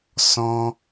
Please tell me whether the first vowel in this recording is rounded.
yes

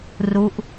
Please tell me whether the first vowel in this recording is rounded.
yes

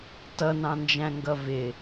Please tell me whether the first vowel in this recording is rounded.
no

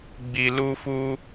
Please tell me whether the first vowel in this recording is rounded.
no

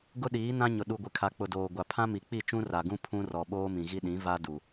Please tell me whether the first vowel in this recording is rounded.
yes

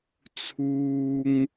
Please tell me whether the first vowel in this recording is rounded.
yes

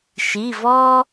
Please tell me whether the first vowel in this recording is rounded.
no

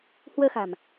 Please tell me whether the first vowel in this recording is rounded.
no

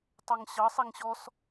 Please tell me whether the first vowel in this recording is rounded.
no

